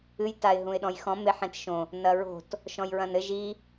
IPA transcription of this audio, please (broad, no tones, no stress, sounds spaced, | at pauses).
ɨ j t a ɪ̯ ɦ ũ ɪ̯ ɗ ɔ̃ j x ɔ̃ m e ħ ẽ t ʃ õ | n ɐ ɹ o̤ t | ʃ ɔ̃ j ɹ ɐ̃ n ɘ ʒ i